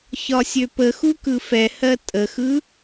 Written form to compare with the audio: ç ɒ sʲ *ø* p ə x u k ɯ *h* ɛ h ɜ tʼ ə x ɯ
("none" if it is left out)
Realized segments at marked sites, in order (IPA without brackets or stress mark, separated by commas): ø, f